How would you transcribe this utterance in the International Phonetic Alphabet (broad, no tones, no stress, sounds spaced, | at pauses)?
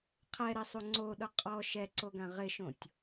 qʰ ɛ ɾ ɛ sˤ u ŋ͡ǀ o ɗ ʊ qʼ ɔ ʃ ɛ ǀ o ɡ ã ʁ ɪ ʃ õ tʲ